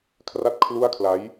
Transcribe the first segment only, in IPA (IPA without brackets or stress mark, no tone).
kʰ